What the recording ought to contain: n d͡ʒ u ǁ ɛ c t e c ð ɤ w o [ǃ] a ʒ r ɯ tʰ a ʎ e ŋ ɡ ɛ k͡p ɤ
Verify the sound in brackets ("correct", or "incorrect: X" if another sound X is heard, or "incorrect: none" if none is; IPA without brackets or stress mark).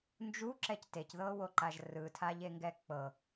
correct